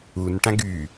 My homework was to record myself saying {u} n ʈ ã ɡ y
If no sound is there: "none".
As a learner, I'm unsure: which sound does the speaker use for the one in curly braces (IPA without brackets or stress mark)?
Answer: u